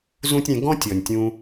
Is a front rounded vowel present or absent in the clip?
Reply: absent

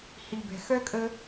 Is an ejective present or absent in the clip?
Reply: present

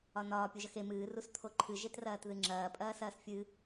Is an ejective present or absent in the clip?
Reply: present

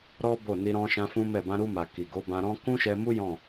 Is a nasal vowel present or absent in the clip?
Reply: present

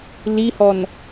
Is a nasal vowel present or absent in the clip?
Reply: absent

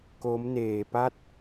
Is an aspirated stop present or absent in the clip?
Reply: absent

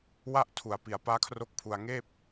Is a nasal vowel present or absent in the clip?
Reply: absent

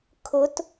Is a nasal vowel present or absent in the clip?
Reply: absent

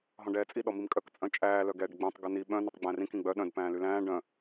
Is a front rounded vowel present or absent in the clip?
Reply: present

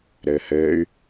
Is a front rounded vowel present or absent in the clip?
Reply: present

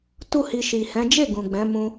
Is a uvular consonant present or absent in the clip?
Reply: absent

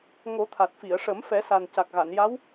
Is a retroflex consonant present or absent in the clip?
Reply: present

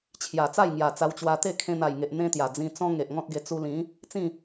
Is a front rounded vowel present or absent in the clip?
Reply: absent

